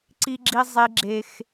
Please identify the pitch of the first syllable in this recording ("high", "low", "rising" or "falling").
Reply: high